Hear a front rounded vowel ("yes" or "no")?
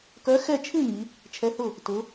yes